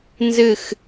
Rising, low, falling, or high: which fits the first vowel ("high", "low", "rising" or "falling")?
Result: falling